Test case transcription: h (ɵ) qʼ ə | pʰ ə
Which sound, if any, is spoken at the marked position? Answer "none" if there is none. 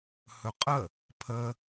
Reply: ɵ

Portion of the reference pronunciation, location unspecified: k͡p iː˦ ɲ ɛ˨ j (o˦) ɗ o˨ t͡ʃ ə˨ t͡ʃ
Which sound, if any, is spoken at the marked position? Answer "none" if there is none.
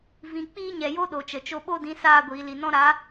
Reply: o˦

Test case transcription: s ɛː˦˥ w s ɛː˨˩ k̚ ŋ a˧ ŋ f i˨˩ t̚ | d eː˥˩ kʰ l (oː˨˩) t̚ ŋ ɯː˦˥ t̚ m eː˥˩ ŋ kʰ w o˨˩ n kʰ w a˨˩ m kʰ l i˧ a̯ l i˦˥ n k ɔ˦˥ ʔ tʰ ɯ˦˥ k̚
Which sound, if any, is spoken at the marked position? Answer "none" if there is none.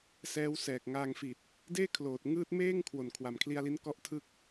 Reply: oː˨˩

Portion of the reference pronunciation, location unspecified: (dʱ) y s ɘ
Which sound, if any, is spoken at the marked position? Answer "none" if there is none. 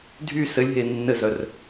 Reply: dʱ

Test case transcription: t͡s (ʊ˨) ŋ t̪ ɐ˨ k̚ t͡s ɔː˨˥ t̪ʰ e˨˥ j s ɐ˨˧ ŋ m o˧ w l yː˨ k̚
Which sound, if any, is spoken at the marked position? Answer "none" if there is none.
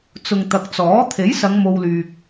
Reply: ʊ˨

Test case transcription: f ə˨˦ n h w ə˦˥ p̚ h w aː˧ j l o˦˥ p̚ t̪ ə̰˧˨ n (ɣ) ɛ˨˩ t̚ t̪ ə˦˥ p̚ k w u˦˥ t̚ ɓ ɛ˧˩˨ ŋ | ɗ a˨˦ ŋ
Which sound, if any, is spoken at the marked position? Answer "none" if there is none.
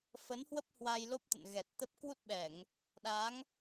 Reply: ɣ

